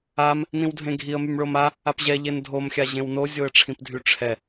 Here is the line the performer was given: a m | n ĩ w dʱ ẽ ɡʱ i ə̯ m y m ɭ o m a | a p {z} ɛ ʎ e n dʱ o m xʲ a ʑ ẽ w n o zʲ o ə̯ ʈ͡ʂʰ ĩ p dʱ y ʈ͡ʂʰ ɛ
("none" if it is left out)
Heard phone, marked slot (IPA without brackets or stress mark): ʑ